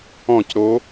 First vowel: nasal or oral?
nasal